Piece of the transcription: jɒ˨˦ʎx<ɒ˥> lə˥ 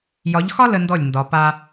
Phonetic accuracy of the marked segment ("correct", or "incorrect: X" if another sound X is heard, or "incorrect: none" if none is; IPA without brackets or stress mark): correct